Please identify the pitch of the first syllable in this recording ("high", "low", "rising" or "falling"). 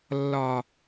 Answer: low